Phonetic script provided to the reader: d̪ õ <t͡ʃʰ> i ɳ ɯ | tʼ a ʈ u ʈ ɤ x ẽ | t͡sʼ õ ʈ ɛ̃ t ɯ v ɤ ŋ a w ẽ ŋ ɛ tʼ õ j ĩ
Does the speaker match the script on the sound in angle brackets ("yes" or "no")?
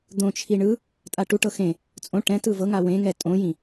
yes